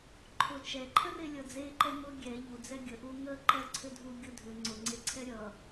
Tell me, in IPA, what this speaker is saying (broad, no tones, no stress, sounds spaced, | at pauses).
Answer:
ǃʰ ʊ t͡ʃ ɛ ǃʰ ə r e lʲ ʌ d͡z e ǃ ɛ m ʊ ɡʲ ɛ ʎ u d͡z ɛ ɡʲ ə ʔ u ŋ ə ǃ ʌ ǀʰ ʏ dʱ u ɡʲ ʊ dʱ ʏ ŋ͡ǀ ʊ ŋ͡ǀ e ǀʰ ɛ ɾʲ ʌ